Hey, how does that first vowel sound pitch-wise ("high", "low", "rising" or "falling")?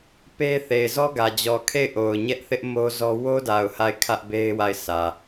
high